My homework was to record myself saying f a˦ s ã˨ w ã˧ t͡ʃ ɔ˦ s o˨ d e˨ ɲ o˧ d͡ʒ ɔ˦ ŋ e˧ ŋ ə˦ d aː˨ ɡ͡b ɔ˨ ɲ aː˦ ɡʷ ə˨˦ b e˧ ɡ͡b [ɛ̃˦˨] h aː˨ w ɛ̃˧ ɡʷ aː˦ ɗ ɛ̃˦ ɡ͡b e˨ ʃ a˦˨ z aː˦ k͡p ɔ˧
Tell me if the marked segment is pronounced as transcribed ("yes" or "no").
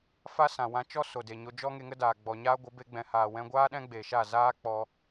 no